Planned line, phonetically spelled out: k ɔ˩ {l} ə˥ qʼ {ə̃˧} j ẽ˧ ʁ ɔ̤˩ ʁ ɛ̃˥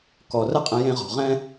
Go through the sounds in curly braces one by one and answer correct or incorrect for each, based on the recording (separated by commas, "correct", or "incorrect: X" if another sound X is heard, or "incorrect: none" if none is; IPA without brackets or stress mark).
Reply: incorrect: r, correct